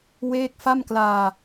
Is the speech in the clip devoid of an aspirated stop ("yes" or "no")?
yes